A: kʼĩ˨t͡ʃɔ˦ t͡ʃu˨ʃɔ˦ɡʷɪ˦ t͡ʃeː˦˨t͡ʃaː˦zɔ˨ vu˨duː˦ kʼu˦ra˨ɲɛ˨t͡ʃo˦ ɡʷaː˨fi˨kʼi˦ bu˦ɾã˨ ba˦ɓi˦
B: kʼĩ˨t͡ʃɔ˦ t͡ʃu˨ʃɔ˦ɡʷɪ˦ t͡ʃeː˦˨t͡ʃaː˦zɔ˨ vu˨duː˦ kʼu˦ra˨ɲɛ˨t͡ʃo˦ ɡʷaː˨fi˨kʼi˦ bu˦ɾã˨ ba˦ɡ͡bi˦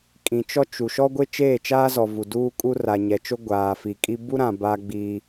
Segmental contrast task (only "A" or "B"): B